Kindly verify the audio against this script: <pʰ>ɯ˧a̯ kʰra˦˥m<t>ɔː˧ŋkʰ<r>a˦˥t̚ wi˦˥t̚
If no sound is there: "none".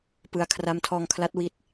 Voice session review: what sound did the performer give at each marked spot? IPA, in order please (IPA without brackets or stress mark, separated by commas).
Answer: p, tʰ, l